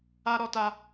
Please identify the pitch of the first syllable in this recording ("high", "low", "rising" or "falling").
high